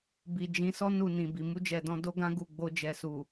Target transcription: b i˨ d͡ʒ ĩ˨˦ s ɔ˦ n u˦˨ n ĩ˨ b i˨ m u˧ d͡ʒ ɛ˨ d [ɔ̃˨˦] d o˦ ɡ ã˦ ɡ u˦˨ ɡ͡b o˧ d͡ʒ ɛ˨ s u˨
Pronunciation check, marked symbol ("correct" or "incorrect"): incorrect